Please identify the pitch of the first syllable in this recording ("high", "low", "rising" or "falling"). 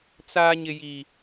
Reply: high